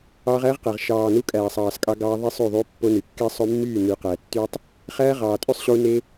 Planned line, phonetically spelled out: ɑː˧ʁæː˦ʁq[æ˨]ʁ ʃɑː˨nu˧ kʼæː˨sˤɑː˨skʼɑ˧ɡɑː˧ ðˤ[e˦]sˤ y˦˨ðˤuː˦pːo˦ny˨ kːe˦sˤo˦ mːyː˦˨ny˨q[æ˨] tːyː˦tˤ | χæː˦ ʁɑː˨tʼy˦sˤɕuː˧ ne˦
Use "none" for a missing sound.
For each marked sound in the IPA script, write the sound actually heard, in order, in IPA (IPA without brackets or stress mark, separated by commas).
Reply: æ˨, e˦, æ˨